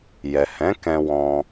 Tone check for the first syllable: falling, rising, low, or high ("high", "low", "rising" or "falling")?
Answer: low